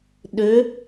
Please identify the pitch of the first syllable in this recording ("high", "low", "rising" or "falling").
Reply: rising